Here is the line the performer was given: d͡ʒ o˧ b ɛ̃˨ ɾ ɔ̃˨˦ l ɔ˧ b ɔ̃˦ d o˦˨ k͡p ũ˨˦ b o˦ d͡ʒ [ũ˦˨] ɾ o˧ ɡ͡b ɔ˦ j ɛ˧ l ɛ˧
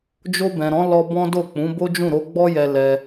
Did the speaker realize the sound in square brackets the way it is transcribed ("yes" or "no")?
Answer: yes